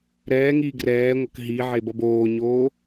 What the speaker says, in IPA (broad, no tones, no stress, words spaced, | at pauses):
ɾɛːŋiː ɡrɛːŋʷʌk ɦiʕebʌb oːɲoː